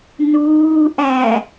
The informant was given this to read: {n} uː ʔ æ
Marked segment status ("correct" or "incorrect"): correct